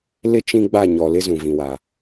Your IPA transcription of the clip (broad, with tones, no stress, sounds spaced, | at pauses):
l ɪ˦ t͡ʃ ĩ˦ ɡ͡b a˦˨ ɲ ɔ˨ l ɪ˦ z ũ˨ v ĩ˨ w a˨